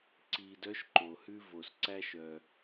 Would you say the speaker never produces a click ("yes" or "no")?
no